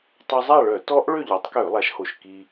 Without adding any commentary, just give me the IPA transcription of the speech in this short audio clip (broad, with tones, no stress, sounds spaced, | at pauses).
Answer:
tˤ ø˧ zˤ a˥˨ ɭ œ˧˩˧ t ɔ˦˥ ʔ ɭ ø˥˨ ʎ œ˩˥ tˤ k ø˧˩˧ lˠ a˩˥ ʃ h o˨˩ ʃ k i˧